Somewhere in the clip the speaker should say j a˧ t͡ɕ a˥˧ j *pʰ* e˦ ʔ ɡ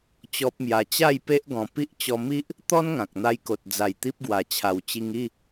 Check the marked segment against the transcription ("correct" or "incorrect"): incorrect